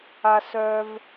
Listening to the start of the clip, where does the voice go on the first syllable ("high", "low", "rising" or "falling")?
low